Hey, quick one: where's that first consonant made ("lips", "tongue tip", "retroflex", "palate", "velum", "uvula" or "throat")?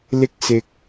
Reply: tongue tip